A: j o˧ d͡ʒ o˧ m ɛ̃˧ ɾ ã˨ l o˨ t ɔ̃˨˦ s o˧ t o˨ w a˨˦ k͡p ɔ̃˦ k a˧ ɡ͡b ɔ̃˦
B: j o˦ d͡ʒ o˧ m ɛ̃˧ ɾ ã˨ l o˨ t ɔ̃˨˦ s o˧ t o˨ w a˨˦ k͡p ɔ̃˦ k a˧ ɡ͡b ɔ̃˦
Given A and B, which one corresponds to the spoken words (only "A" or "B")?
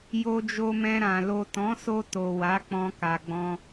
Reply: A